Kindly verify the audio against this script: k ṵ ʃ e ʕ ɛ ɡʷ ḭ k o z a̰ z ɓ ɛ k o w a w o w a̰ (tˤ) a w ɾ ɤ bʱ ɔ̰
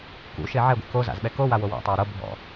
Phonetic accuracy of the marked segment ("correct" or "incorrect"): correct